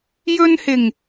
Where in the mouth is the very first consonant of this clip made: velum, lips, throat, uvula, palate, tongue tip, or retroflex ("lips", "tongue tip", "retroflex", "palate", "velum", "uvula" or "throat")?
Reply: palate